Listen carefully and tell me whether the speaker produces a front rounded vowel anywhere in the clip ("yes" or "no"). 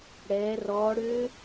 yes